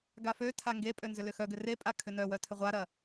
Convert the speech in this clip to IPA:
ɡ a f ø tʰ a ŋ ɡ e pʼ ø n z ʏ l ʏ x œ ɡ ʏ r e pʼ a kʰ ʏ n œ w œ tʰ ʏ ʁʷ a ɾ ɐ

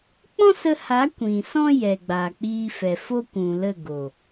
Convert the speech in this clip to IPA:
k͡p ɔ̃˦ s ə˧ h a˨˦ kʷ ĩ˨ s ɔ̃˦ j ɛ˨ ɡ͡b aː˨ k͡p iː˧ f ɛ˨ f o˦ kʷ ũ˨ l ə˦˨ ɡ o˨

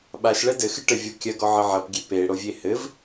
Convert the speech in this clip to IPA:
ɓ a ʃ ɭ ɛ d ɘ x ɨ ʈ ɘ vʲ ɔ kʲ ɐ ɡ ɔ ʕ ɘ ʕ ɐ p ɡʲ e p e ɽ o vʲ e h ɘ v

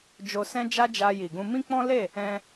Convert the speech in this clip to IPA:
d͡ʒ o˧ s ɛ̃˦ d͡ʒ a˦ d͡ʒ a˧ j i˨ ɡ ũ˧ m ĩ˦ k͡p ɔ̃˦ l e˦˨ | ɛ̃˧

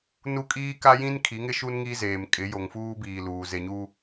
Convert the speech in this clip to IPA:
n u˦ kʼ iː˦ k a˦ j ĩ˦ n kʰ i˨˦ ŋ ɪ˦ ʃ u˦ n ŋ i˦ z eː˨ m kʼ ɪ˨˦ j o˨ ŋ f uː˦ b iː˨ l uː˨ z e˨ ɲ u˦

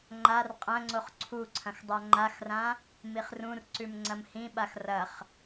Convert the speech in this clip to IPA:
ŋ͡ǃ a r qʼ ɐ̃ ŋ͡ǀ o χ ǀʰ u ǀʰ ɐ̃ x dˤ a ŋ͡ǃ a x r ã | m i χ r ũ r ǀ ʉ m ŋ͡ǀ ɐ m h ĩ ɓ a x r ɐ χ

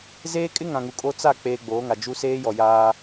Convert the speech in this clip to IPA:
z eː˦ kʼ ɪ˦ ŋ ã˨ ŋ u˨ kʼ o˦ t͡s a˦˨ k͡p eː˨ ɡ͡b oː˨˦ ŋ a˨ d͡ʒ u˦ s eː˦ j ɔ˨ j aː˦

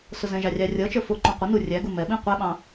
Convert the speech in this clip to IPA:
s ʊ z ɛ̃ ʒ ɑ rʲ ɑ rʲ ʌ t͡ʃ ə˞ f ʊ ǃ ũ qʷ ə n u rʲ æ ɡ u m ɛ ɓ ĩ qʷ ɛ ɓ ɑ̃

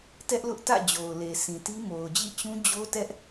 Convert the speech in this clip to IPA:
t ɛ˦ ʔ l ʊ˦ ʔ t ä̰˦˨ d͡ʑ o˨ ʊ̯ l e˨ s ĩ˨ t i˦ m o˨ ʊ̯ d͡ʑ ḭ˦˨ t͡ɕ ũ˦ d͡ʑ o˦ t ɛ˦ ʔ

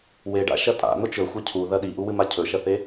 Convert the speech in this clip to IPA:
w e ɖ a̰ ʃ ɐ tʼ a̰ n̪ o t͡ʃ ɵ xʷ ɐ cʰ u ð ɐ ɗ i ʔ u w ɨ m a cʰ ɵ ʃ ɐ θ e

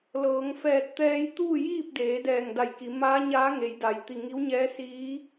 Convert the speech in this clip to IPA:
l ɤː˩˧ ŋ f ɛː˧˩ t̚ t̪ ɛː˧ j t̪ uː˥˨ j iː˥˨ p̚ d eː˩˧ d ɛː˧˩ ŋ d a˧˩ j k i˩˧ m aː˧˥ ɲ aː˧˥ ŋ e˩˧ j d a˩˧ j t̪ i˧˩ ŋ i˧˥ w ɲ ɛː˧˥ s iː˧˥

